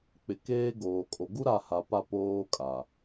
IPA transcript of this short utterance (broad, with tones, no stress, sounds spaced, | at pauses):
k͡p ɪ˨ k eː˦ ɡ oː˨ kʼ o˨ ɡ u˦ ɾ a˦˨ h a˨ p a˦˨ p oː˦ kʼ a˨